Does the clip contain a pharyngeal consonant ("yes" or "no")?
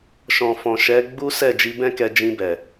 no